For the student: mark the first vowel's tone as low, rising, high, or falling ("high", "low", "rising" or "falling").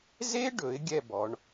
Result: high